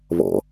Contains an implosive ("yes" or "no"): no